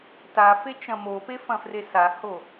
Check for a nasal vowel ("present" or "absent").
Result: present